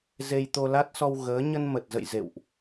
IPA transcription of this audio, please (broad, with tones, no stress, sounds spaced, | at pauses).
z e˧ j t̪ o˧ l a˦˥ t̚ s ɔ˧ w ɣ əː˨˦ ɲ ə˧ n m ə˨˩ t̚ z ə̰˧˨ j z ḛ˧˨ w ʔ